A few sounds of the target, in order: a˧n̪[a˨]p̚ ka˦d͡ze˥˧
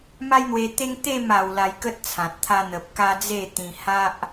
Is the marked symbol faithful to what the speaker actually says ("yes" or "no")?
no